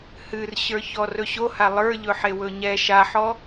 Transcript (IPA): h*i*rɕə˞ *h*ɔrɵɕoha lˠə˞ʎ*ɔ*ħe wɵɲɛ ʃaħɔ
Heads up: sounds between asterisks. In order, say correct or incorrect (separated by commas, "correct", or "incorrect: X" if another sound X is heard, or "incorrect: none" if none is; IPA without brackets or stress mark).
incorrect: ɨ, incorrect: ç, incorrect: ɵ